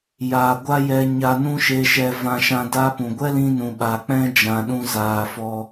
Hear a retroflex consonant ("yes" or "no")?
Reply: no